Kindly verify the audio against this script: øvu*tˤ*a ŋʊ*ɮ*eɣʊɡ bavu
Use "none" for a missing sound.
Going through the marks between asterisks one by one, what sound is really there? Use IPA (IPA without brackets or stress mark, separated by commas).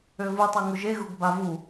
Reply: tˤ, ʒ